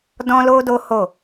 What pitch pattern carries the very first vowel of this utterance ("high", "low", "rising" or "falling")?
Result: high